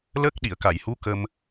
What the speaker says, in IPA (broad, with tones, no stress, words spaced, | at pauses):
lə˦˥k̚ɗi˨˩˨ə̯ ka˨˩˨jhu˧˥ kə˧m